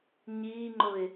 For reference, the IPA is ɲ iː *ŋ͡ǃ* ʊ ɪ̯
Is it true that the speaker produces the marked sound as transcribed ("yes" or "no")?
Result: yes